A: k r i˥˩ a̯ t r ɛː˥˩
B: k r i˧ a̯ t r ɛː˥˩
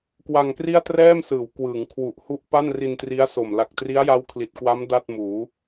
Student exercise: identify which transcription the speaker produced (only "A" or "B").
A